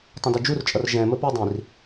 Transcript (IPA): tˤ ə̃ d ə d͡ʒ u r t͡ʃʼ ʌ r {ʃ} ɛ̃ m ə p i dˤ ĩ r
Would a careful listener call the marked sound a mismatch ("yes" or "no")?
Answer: yes